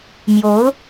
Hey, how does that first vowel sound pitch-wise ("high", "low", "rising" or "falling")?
rising